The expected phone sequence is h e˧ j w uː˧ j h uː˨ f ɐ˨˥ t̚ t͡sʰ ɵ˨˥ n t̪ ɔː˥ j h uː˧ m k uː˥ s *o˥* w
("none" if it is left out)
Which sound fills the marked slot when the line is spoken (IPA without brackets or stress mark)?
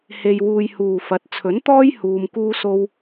o˥